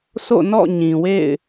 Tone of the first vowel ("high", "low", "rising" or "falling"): falling